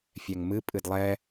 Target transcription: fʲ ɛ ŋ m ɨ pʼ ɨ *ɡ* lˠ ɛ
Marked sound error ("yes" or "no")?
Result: yes